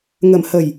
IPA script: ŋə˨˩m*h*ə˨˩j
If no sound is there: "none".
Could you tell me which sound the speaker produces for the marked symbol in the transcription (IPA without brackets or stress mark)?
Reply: h